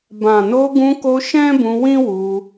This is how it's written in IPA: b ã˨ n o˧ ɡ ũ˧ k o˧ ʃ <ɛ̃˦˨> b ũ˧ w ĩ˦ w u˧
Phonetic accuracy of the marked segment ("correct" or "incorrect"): incorrect